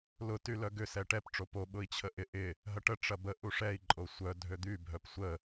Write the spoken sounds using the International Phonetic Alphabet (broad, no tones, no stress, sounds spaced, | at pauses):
l ʊ t y l œ ɡ ʏ s ɛ ʈ ɛ p ʈ͡ʂ o p o ɓ ʊ i̯ t͡ɕʰ ə ʔ ɪ ʔ ɪ | ɦ ɐ ʈ ə ʈ͡ʂ ɐ b ə ʔ u ʂ ɛ i̯ ǃʼ o sʷ œ dʱ ø d̪ y bʱ œ p sʷ ə